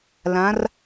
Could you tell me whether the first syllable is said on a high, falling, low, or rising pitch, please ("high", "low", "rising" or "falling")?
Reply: rising